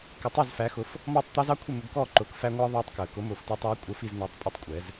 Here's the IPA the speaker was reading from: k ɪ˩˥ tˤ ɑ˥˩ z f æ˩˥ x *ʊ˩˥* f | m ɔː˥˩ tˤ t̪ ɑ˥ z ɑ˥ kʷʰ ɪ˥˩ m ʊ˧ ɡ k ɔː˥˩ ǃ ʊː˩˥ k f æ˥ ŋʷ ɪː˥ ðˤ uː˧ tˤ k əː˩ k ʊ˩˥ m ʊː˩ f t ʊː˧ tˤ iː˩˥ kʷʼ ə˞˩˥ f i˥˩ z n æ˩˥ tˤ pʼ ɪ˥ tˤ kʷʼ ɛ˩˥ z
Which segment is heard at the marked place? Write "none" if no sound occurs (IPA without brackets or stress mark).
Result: ʊ˩˥